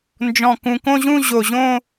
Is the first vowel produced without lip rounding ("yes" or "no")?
no